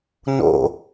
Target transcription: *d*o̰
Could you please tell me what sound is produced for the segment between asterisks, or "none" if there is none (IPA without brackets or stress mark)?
n